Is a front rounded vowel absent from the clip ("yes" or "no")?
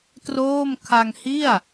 yes